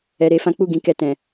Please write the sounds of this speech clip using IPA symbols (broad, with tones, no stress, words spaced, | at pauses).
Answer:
ɛ˧ɾe˧fã˦ k͡pu˦˨ɡĩ˧ kɛ˧tɛ̃˨